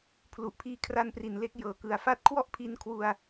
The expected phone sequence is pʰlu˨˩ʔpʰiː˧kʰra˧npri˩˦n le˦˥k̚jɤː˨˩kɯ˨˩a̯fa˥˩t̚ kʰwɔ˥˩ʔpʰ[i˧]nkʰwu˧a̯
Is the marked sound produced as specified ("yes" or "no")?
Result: yes